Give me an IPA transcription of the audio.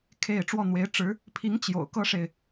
kʰ e˥˧ ɪ̯ ʈ͡ʂ w ɔ˥˩ n̪ w e˧˥ ɪ̯ ʈ͡ʂ ɻ̩˧˥ | pʰ i˧˥ ŋ t͡ɕ j o̰˨˩ ʊ̯ k ɤ˥ ʂ e˨ ɪ̯

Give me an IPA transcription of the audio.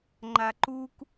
ŋ͡ǃ a ǃ u k

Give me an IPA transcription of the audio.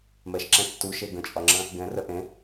m ɛ ʃ ǁ ɛ̃ tː u ʃ e ɡ ə̃ t͡ʃʼ ɒ ŋ͡ǁ ə̃ | ɡ ɛ̃ r ə ʔ ẽ

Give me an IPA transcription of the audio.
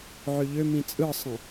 ʕ ø ʎ ø m ĩ t͡sʼ ɯ sˤ ə̃

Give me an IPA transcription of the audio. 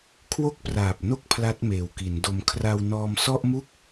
kʰ w o˥˩ k̚ p r aː˨˩ p̚ n o˥˩ k̚ pʰ l a˦˥ t̚ m eː˨˩ w k i˩˦ n d o˧ m kʰ r a˧ w n ɔː˧ m s ɔ˥˩ ʔ m u˥˩ k̚

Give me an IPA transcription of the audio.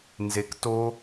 n z e k t o

